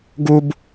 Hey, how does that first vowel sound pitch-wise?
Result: high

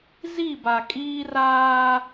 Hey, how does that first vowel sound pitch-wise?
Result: falling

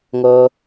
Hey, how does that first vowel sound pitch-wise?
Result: high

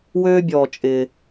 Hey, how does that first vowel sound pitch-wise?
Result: high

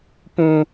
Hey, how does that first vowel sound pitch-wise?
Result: high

